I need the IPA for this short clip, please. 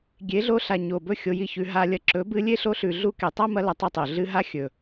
ɡʲ e˨˦ ɮ o˧ ɬ a˨ ɲ o˨ b ɵ˦˨ xʲ o˧ j i˦˨ ç ʉ˧ ɦ a˧ lʲ ɐ˧ ǁ ɵ˨˦ b ɨ˧ lʲ e˦ ɬ o˧ ɬ ʉ˨ ɮ u˧ k e˨ tˤ a˦ m ɐ˧ l ɐ˨˦ tˤ ɐ˦ tˤ o˨ ɮ ɨ˧ ɦ a˦ xʲ ɵ˨

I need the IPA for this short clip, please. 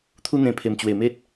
t̪ʰ u˧ n̪ ẽ˨˩ pʰ e˨˩ m t͡ɕ w e˨˩ m e˦ t̚

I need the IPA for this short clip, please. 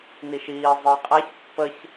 n i ʃ iː zˤ ɯ j qʼ a ç pː ə ç

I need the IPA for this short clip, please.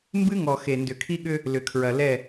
m b ɨ˦ ŋ ɔ˨ x e˨ n d ʏ˨ kʰ i˦ ɠ ʏ˦ | l ʏ˨ kʰ ɹ ɐ˨ l ɛ˦˨

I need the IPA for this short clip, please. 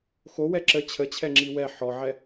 x o w ɛ ǁ ə t͡ɕʰ ə t͡ɕʰ ɛ ŋ͡ǁ i w ɛ ħ ɔ ʕ ɛ

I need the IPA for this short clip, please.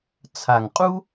t͡sʰ a˨˩ ŋ qʼ u˥

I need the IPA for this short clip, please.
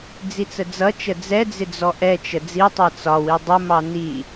d͡z i t͡s ə d͡z ʌ t͡ʃ ə d͡z ɛ d͡z ɪ d͡z ɔ ʔ ɛ t͡ʃ ə d͡z i tˤ ɑ t͡s ɒ w i dˤ ʊ m ɑ n i

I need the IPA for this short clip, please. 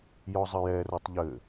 j ɔ zˤ ɘ j ɛ r o tˤ ʎ ɘ

